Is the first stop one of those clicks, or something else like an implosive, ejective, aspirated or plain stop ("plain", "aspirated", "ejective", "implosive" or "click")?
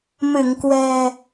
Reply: plain